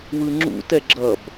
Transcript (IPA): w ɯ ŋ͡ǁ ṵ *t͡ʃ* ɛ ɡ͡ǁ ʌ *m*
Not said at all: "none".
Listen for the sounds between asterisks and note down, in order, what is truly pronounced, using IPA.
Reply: t, b

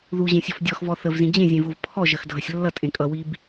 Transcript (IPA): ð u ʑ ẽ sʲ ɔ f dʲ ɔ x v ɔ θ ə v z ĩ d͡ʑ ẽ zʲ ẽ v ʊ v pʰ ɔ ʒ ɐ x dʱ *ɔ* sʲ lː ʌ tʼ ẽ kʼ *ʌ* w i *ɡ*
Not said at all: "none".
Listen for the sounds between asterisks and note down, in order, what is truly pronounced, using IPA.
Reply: ʌ, ʌ, b

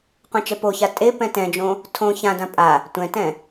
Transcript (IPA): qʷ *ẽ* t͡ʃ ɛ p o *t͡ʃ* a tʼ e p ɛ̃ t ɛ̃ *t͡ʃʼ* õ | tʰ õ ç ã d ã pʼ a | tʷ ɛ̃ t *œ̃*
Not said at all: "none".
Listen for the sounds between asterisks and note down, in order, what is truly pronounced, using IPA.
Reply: ẽ, ç, d͡ʒ, ɛ̃

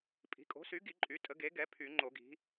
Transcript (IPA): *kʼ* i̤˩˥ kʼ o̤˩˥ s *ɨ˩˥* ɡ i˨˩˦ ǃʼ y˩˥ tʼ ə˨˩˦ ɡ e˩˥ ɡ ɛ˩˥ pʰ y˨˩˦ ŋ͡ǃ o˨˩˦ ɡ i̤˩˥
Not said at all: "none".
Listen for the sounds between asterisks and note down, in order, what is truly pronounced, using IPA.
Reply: pʼ, y˩˥

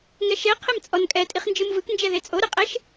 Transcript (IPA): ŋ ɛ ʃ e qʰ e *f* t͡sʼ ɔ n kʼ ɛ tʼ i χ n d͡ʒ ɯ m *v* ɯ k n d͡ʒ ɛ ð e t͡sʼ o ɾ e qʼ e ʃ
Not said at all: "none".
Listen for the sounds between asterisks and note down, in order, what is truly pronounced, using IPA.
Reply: m, v

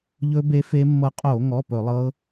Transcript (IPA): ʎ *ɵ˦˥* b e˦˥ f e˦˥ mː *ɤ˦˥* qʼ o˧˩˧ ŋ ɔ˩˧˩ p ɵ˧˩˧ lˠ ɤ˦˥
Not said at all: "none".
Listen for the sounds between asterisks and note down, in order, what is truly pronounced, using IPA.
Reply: ɵ˦˥, ɤ˦˥

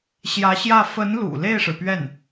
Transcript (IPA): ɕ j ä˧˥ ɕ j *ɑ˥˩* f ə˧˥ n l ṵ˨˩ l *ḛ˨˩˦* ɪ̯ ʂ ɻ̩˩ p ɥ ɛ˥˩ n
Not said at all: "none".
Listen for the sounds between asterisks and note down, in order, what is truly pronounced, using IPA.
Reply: ä˥˩, e˥˩

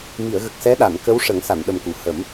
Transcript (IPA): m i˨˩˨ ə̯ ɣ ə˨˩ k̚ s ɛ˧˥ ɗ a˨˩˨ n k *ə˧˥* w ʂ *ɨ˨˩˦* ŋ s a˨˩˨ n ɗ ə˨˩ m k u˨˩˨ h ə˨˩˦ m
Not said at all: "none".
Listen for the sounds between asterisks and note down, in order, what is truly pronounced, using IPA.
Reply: ə˧˥, ə˨˩˦

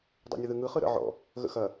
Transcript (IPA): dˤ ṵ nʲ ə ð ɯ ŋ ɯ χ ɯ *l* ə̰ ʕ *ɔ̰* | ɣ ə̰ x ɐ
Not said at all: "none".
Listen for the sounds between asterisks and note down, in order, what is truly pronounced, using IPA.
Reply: ɾ, ɔ̰

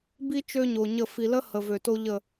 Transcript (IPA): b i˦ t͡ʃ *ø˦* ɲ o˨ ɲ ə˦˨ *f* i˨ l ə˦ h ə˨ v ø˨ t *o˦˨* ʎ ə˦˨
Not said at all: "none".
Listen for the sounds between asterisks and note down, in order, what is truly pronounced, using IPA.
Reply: ø˦, f, o˦

